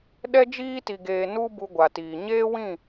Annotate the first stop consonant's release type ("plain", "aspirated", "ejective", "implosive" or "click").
implosive